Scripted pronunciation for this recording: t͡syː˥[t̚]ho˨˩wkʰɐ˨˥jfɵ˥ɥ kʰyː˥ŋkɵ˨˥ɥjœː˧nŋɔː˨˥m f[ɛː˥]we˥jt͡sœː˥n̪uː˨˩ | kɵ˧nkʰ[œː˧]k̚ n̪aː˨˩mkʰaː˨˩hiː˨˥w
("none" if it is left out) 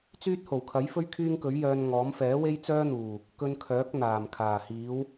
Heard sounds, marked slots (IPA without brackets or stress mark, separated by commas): t̚, ɛː˨˥, œː˨˥